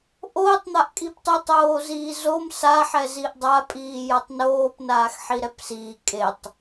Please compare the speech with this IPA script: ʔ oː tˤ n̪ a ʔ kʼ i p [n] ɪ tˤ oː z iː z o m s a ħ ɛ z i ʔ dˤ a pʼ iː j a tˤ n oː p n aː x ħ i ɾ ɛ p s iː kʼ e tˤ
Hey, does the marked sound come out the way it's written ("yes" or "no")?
no